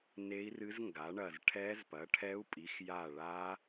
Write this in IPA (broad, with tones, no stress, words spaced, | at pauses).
ne˦˥i̯rɨ˦˥z ŋɡa˨˥ɳɐ˦˨z ʈʰɛ˦˥zpɐ˨˥ʈʰɛ˦˥u̯pʼi˨˥x ja˦˨ɭa˦˥